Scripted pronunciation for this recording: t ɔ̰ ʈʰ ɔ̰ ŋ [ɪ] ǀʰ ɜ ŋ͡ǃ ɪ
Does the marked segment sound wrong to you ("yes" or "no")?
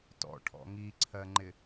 yes